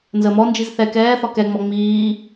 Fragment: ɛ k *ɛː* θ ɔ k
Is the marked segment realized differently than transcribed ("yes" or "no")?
no